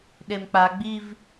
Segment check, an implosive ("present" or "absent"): present